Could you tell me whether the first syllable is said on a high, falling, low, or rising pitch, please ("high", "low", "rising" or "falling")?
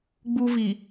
high